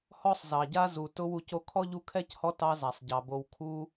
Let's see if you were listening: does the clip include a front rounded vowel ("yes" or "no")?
no